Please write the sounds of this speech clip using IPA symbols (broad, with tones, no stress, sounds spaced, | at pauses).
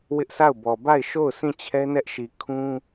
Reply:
w ɪ˦ ʔ s a˦˨ ʊ̯ b ɔ˨ b a˦˨ ɪ̯ ʃ o˦˨ ʊ̯ s ĩ˦˨ t͡ɕʰ ɛ˦ n ɛ˦ ʔ ʃ i˨ kʰ ũ˦